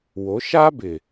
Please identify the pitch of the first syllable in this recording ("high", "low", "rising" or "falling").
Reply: rising